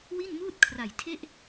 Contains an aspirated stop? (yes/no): yes